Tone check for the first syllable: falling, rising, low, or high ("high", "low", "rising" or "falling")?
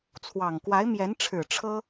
low